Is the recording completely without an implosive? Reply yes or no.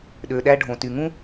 no